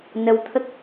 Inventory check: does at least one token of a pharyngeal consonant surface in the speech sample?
no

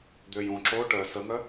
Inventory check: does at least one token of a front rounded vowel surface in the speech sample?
yes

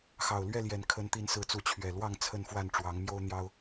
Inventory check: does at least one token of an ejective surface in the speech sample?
no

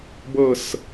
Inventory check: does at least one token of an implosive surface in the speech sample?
no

